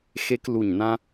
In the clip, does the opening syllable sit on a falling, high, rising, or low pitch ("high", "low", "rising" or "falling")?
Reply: high